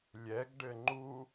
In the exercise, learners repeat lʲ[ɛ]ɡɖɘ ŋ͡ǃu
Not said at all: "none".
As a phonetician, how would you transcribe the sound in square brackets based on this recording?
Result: ɛ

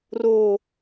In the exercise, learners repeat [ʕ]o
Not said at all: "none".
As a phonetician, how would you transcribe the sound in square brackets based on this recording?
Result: r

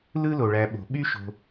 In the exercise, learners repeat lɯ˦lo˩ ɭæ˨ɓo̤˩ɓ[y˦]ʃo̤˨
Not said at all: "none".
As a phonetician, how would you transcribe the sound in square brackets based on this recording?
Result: y˥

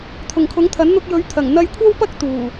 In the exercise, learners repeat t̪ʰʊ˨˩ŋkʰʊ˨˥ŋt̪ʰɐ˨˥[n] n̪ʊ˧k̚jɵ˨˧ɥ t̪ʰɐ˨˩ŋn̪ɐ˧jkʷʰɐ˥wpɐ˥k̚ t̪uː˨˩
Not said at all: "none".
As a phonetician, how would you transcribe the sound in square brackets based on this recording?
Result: n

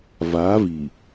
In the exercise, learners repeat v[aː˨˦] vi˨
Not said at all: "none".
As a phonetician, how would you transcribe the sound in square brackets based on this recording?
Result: aː˨˦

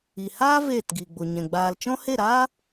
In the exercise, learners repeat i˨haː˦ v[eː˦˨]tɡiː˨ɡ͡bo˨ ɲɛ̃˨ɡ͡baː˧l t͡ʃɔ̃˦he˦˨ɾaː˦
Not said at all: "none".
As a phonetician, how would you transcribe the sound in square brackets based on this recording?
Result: eː˦˨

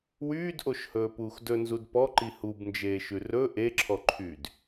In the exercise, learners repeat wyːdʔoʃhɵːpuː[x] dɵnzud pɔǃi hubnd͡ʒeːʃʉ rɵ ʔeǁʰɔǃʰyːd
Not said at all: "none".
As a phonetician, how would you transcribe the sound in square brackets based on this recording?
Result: x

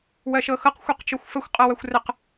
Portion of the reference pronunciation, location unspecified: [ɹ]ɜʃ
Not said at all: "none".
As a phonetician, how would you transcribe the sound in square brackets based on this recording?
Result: w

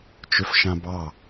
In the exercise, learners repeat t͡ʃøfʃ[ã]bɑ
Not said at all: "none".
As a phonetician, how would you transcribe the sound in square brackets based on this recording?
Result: ã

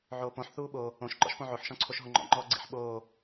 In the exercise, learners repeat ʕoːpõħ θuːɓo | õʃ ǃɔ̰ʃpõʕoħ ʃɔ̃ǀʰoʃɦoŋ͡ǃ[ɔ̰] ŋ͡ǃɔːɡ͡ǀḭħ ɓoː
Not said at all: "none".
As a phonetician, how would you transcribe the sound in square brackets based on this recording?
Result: ɔ̰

